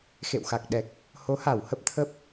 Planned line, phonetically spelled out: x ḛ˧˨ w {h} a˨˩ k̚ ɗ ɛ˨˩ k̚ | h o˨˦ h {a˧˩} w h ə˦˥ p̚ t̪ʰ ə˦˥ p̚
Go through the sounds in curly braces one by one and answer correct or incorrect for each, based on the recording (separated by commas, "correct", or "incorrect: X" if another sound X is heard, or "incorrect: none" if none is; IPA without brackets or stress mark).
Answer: incorrect: x, correct